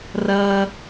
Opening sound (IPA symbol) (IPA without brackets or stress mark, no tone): r